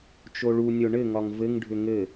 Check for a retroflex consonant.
present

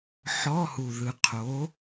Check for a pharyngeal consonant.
present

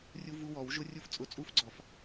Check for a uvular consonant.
absent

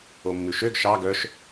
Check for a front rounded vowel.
present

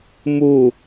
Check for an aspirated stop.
absent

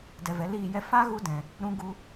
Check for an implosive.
absent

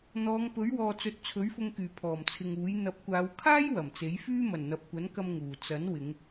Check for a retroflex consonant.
absent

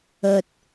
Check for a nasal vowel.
absent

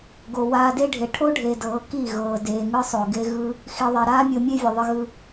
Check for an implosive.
absent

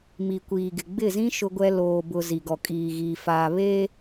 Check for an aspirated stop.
absent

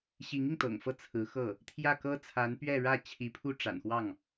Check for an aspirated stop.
present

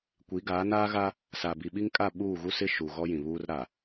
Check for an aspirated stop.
absent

